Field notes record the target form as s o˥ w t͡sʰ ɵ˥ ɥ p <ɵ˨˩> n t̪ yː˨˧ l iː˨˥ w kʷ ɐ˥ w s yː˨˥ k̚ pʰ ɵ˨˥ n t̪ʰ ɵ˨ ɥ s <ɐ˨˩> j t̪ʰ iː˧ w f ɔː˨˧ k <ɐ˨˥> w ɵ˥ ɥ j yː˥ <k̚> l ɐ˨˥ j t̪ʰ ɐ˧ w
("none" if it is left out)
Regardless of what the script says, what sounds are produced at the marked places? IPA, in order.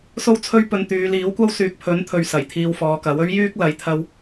ɵ˧, ɐ˨˩, ɐ˨˥, k̚

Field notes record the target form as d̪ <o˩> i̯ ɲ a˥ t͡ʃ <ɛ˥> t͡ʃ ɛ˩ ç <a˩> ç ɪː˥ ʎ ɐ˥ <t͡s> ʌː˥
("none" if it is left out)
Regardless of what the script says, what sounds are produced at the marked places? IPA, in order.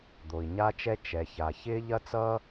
o˩, ɛ˥, a˩, t͡s

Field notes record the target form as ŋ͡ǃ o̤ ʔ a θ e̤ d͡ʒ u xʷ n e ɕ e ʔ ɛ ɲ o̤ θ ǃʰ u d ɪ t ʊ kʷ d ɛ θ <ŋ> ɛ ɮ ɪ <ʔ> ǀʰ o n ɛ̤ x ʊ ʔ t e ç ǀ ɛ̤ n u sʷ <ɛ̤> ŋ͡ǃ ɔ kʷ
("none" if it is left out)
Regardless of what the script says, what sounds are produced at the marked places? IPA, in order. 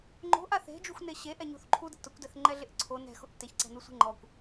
ŋ͡ǃ, ʔ, e̤

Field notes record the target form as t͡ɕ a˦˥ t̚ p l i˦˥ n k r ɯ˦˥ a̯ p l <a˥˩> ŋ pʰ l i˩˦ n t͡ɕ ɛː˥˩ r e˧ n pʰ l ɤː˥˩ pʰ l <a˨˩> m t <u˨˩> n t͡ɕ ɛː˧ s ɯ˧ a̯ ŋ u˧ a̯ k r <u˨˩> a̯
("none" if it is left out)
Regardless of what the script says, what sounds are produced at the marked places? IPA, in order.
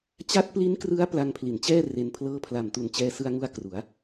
a˧, a˨˩, u˨˩, u˩˦

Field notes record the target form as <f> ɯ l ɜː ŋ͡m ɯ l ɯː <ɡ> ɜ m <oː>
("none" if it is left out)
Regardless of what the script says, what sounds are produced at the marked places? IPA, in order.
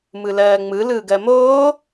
m, ɡ, oː

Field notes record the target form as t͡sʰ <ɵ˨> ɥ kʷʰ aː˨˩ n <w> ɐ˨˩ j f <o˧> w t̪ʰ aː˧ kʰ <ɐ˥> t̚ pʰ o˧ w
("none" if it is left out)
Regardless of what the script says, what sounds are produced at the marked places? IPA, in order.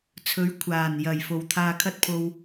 ɵ˨˥, j, o˨˩, ɐ˥

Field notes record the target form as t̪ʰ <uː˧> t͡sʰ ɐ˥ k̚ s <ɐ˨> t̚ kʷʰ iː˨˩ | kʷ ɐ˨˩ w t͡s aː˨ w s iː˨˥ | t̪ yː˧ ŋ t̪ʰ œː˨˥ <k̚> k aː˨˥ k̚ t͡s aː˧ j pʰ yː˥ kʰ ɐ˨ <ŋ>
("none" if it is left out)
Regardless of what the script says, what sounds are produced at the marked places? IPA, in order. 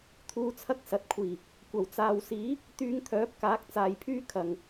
uː˧, ɐ˨, p̚, ŋ

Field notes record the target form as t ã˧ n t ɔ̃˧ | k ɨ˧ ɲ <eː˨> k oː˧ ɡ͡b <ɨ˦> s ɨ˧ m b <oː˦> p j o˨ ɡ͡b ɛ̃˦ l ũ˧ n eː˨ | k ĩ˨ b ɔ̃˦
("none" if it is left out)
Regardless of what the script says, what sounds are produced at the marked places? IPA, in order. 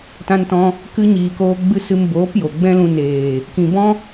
iː˨, ɨ˦, oː˨˦

